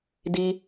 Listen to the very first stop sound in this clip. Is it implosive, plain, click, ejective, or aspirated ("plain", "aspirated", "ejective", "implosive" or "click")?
plain